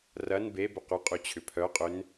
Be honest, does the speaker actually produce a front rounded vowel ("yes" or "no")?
yes